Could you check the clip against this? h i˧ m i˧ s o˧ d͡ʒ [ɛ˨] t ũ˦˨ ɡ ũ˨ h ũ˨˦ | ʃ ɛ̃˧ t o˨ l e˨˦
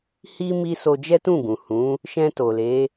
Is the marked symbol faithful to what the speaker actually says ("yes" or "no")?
no